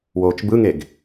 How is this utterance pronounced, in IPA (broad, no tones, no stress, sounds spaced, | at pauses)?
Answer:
w oː t͡ʃ b ɯ ŋ e ɡ